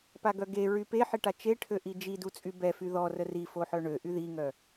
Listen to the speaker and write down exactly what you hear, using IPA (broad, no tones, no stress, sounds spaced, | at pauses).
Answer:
p a ɡ œ ɡ e ɹ y p e ħ i ʈ a t͡ʃ e ʈʰ ø ʔ i d͡ʒ i d u t͡sʼ y b ɛ f y ð ɔ r ə r i f o ħ œ ɳ ø ʔ y ð i ŋ œ